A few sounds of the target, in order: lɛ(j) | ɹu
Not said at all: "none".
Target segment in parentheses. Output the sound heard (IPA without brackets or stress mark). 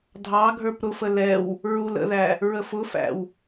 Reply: w